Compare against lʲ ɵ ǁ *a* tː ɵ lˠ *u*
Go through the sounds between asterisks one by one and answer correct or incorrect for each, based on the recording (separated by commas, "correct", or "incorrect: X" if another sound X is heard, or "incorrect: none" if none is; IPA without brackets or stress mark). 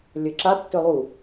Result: correct, correct